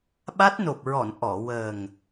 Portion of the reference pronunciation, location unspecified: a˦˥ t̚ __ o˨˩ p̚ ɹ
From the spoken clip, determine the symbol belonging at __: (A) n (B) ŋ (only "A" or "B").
A